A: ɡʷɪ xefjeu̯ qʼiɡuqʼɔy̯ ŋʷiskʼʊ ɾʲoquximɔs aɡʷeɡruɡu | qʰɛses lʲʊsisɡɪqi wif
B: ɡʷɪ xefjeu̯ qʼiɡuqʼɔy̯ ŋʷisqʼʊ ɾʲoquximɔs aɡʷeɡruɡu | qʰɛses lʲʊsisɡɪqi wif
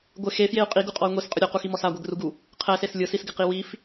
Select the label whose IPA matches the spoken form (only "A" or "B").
B